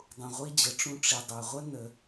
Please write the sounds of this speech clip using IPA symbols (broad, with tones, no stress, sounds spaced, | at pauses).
dˤ ũ˨ ʁʷ i˧ d͡ʑ ə˨ ʈ͡ʂ ũ˧ ʈ͡ʂ i˨ dˤ ø˨ ʁʷ ə˦ n ə˧